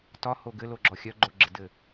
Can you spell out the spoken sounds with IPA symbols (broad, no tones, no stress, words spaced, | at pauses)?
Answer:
tɒho ɡɘloɡ͡ǁɔ xʲœɡ͡ǃoɡ͡ǁɘdɘ